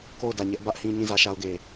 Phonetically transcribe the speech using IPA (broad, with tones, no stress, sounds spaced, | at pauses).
k o˦˨ ʊ̯ d ä˨ ɲ ɛ˦ ʔ b ä˦ ʔ h ĩ˦ ɲ ĩ˦˨ z ä˦ ʃ a˦ ʊ̯ ɡ e˨